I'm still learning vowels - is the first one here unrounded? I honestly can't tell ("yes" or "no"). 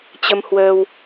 yes